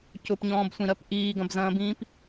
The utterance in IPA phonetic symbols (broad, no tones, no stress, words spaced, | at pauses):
cʊpɲɔ̃ːbsʷĩɾɜp ʔiːɡɐ̃bzɐ̃ːbĩːp